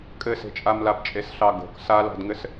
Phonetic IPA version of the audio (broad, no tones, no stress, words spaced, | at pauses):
kʼɘse̤t͡ʃʼamlab t͡ʃʼesɬɑɡo̤k salɑ̤dŋɘs